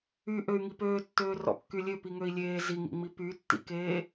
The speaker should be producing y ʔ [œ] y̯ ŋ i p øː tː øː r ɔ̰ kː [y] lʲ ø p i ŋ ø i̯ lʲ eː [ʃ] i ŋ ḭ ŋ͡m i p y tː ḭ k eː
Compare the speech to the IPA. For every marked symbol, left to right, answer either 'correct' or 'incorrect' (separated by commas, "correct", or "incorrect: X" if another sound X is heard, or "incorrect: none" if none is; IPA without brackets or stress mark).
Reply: incorrect: ø, correct, incorrect: z